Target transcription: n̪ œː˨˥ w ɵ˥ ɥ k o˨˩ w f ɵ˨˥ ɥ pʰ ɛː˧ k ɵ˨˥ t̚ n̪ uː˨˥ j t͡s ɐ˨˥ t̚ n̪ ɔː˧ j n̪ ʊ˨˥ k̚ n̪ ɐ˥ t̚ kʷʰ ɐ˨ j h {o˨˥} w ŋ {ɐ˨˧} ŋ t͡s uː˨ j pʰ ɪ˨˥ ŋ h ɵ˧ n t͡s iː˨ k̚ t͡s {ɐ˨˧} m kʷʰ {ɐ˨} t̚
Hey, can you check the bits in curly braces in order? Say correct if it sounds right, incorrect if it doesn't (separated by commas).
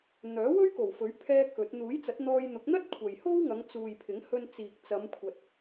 incorrect, correct, correct, correct